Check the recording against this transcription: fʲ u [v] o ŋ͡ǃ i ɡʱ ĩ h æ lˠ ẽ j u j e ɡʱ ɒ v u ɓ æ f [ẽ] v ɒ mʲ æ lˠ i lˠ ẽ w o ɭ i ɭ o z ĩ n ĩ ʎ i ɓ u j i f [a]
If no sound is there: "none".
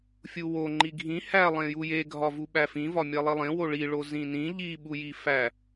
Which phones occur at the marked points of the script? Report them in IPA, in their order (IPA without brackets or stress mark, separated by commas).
w, ĩ, æ